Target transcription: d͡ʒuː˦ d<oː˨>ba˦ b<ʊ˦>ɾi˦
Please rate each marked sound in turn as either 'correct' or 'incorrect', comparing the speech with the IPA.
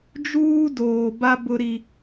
correct, correct

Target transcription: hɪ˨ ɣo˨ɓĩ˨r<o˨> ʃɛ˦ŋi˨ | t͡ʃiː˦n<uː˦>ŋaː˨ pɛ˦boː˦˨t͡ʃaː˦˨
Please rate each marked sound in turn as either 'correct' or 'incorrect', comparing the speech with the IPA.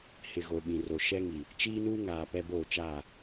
correct, correct

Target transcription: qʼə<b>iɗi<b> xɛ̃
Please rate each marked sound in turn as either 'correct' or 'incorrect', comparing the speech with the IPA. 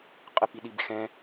incorrect, correct

